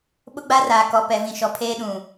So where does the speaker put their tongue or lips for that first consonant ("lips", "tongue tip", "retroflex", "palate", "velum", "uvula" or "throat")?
lips